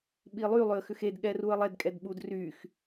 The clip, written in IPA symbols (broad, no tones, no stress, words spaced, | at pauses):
ɓilˠy lˠʏə̯xʏxed ɠɛruə̯lˠɛd kʼɛdɓud ryx